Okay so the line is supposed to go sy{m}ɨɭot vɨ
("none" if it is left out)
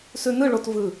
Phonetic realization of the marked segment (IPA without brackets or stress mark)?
n